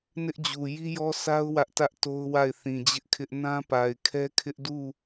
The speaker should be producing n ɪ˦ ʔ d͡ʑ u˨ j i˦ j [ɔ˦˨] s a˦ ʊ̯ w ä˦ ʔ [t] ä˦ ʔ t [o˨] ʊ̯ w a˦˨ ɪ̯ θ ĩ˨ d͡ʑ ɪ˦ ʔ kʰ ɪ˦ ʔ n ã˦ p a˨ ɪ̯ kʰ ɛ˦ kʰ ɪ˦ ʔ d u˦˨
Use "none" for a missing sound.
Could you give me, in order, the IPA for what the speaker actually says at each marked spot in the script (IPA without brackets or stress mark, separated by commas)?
ɔ˦, t, o˦